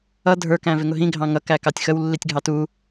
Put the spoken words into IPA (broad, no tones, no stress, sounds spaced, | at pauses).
ʌ dʱ ə˞ k æ̃ v ɪ ŋ ʊ ɦ ĩ ɡʱ ɑ̃ ŋ ʌ k æ k ɑ tʲ x ə w lː i tʲ ɡʱ ɑ t u